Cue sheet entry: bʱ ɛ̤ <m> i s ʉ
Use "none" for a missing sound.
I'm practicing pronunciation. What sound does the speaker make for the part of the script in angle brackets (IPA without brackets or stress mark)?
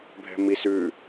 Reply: m